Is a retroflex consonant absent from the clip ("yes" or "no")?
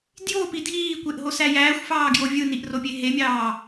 yes